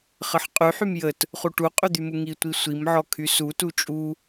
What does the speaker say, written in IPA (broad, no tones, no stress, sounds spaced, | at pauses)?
χ ə ħ qʼ y ħ y m j ə t | χ u ʈ u qʼ y d̪ y m u ŋ i tʷ i sʷ i m ʕ ɔ kʰ y s u t u t͡ʃʼ u